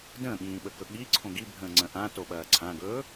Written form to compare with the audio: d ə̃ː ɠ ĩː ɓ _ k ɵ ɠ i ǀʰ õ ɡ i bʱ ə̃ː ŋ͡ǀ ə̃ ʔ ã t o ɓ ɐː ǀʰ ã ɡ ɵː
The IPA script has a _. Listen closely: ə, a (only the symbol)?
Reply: ə